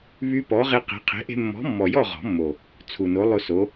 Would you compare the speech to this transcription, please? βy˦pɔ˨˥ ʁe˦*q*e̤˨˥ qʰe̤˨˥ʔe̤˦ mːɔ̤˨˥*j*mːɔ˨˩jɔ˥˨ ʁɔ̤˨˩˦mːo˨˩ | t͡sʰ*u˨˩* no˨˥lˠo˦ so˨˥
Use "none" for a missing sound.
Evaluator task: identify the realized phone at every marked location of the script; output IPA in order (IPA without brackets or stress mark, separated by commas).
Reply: q, none, u˨˩